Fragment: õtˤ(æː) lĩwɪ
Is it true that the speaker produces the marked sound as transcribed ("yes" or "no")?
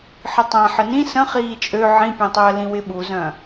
no